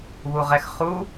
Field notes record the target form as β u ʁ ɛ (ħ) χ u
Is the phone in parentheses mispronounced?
yes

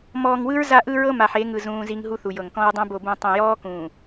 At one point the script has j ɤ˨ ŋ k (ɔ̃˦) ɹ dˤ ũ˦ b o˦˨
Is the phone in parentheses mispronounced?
no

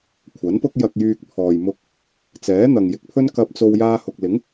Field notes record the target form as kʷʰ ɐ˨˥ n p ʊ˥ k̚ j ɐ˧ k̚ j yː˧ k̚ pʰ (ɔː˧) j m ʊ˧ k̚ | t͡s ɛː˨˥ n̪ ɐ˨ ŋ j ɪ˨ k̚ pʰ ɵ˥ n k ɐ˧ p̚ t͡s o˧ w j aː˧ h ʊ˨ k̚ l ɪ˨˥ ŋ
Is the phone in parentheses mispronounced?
yes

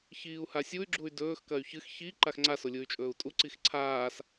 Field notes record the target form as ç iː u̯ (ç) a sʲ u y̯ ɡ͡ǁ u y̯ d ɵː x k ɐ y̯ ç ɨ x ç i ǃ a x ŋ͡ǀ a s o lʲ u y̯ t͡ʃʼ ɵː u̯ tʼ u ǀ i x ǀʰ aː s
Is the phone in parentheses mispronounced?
yes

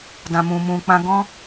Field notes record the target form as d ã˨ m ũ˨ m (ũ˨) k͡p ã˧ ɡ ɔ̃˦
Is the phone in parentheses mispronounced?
no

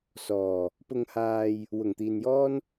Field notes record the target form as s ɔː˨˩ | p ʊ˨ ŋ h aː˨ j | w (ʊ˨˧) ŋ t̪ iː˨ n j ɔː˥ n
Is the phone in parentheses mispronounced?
yes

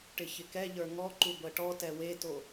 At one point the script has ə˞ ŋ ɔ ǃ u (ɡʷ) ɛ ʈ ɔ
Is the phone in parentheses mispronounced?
no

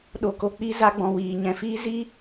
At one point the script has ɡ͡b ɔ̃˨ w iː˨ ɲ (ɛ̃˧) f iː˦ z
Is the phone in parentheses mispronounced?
yes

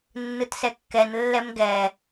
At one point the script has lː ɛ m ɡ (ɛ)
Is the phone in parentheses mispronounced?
no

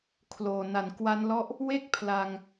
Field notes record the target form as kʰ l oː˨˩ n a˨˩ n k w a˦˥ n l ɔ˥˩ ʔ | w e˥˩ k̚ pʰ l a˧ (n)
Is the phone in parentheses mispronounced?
yes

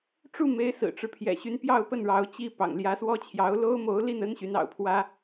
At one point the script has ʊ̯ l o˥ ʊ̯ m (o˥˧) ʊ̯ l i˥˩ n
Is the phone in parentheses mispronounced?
yes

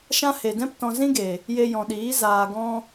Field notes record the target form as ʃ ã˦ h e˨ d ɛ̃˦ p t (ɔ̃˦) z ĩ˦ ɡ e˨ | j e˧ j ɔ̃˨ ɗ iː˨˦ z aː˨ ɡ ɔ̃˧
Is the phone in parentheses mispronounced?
yes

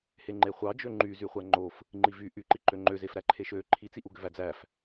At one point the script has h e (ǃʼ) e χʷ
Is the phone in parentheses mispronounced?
yes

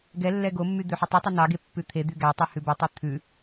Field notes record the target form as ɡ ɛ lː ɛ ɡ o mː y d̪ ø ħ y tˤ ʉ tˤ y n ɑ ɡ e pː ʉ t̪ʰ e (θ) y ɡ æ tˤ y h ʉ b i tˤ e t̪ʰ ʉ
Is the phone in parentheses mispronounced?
yes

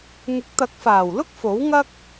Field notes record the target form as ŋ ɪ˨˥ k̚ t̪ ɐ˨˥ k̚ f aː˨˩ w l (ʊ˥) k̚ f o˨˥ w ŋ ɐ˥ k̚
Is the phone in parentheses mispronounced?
no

